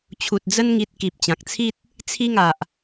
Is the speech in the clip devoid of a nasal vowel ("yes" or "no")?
no